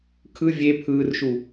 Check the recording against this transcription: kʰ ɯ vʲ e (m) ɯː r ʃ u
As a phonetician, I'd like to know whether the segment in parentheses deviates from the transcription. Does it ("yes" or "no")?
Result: yes